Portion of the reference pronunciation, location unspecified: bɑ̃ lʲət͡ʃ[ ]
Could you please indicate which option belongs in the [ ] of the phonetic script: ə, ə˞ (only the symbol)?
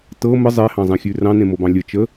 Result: ə